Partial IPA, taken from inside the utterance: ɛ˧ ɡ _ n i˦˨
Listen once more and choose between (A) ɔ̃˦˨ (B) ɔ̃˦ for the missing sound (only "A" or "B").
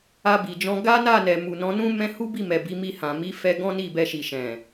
B